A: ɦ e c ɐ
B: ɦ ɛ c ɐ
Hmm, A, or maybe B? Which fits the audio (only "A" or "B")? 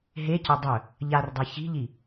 A